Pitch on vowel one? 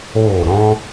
falling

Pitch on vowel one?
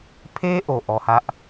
high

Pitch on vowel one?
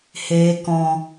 low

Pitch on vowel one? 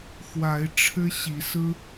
rising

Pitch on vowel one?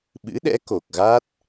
rising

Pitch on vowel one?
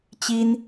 high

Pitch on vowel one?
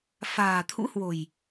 low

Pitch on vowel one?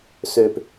low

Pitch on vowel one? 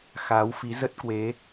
rising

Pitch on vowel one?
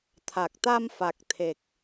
low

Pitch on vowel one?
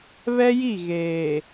high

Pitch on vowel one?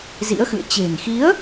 rising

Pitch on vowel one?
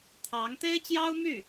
rising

